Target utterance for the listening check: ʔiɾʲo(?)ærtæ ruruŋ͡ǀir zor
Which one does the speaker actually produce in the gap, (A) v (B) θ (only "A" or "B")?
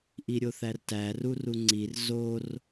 B